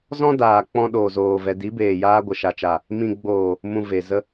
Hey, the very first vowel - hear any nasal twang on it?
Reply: yes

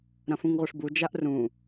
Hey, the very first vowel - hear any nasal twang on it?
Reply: yes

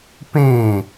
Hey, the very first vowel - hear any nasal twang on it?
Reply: yes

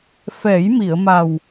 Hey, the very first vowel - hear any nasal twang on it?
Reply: no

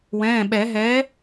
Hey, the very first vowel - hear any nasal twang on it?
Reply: yes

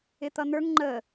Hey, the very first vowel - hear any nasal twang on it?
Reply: no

